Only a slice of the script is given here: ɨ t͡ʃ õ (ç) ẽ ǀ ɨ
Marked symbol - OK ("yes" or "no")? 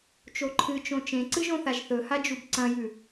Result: no